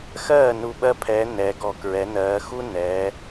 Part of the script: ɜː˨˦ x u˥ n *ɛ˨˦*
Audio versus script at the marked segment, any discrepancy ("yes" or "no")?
yes